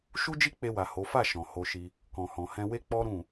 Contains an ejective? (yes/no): no